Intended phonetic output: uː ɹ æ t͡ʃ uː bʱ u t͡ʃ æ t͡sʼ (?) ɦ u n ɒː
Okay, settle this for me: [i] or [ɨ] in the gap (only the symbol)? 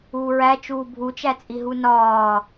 i